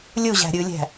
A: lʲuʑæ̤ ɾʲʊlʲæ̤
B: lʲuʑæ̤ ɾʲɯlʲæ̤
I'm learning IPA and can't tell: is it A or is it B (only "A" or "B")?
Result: B